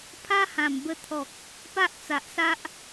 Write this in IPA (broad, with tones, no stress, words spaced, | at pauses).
pʰa˦hã˨˩mbə˧ t̪ʰɔ˨k̚ | pa˦ʔt͡sa˨ʔsa˦ʔ